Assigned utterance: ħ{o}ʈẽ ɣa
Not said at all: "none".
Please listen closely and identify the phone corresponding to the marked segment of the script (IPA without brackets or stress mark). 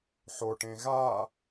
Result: o